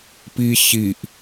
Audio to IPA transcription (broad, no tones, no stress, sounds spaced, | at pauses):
p i ç i ʔ